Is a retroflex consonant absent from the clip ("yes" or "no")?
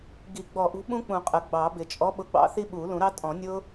yes